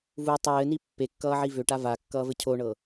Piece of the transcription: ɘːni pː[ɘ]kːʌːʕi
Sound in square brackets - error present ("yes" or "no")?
yes